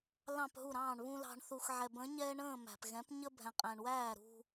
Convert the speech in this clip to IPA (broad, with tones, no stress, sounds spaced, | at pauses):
l ɑ̃˦˨ p ɦ u˦˨ ɾ ɑ̃ː˦˨ ɳ β ũ˦ l ɑ̤˨ ɳ θ u˨ x ʕ ɛ˨ b ə̃˨˥ ɲ ɛː˦ ɳ ə̃ː˦˨ m æ̤˨ p ɣ ɛ̃˨˥ p ɲ ə˦ bʱ ɛ̃˨ qʼ æ̃˨ ɳ w æː˦˨ ɾ ṳ˦